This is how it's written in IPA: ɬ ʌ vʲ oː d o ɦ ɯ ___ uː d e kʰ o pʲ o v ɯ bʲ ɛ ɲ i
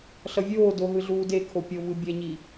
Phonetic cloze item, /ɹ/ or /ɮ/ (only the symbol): ɮ